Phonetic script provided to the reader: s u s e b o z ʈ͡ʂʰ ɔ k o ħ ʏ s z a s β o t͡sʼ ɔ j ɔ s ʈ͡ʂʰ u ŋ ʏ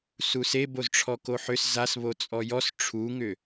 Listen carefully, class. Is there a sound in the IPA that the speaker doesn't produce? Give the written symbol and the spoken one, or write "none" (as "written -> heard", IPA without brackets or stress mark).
none